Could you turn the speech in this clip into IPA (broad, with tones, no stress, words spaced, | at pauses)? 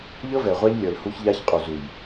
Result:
ʎɤ˦vɛ˨ʁʷa˦ʎ lʲɤ˨lhu˦çʎa˦ç qʼu˨zu˨j